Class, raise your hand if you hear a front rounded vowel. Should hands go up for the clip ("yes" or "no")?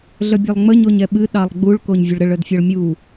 yes